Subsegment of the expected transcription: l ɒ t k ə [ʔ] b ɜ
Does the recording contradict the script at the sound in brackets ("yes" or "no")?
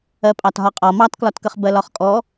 yes